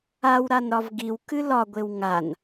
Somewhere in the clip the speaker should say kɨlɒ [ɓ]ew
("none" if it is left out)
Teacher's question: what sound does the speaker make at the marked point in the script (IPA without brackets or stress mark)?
ɡʷ